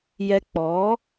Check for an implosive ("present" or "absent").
absent